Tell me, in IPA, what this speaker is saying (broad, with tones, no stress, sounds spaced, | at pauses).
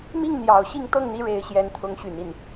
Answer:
m i˥˩ ŋ n̪ j ɑ˨˩ ʊ̯ ɕ i˥˧ ŋ t̪ ɤ˥˩ ŋ n̪ i˧˥ ɻ e˧˥ ɪ̯ ɕ j ɛ˧˥ n t̪ʰ ʊ˧˥ ŋ ɕ y˨˩ n i˥˩ n